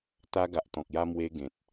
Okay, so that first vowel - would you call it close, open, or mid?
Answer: open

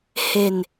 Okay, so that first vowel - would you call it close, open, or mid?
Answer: mid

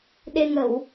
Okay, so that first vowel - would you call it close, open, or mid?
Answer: mid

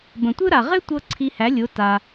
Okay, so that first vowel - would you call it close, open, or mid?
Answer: mid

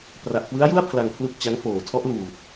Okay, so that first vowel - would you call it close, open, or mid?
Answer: open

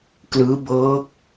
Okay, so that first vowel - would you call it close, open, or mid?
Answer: close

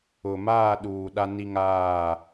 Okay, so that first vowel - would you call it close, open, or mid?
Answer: close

